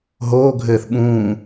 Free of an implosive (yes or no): no